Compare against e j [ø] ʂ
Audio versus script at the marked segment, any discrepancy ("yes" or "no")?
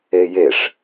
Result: yes